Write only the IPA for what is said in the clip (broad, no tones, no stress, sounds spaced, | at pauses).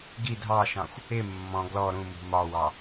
ɡ i dʱ ɑ ʃ ɑ̃ xʷ | ɪ mː ɔ̃ ɡ l ɔ ɾ ũ m ṳ m ɒ w ɑ